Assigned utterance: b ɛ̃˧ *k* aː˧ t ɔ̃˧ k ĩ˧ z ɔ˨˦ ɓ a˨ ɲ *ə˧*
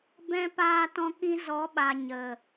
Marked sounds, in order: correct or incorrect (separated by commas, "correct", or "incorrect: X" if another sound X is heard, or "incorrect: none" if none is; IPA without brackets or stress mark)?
incorrect: p, incorrect: ə˨